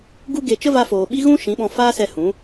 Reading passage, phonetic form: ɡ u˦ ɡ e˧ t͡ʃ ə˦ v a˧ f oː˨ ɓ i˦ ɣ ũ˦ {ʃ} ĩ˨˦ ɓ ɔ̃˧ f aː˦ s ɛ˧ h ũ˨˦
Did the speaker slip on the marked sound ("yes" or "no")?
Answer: no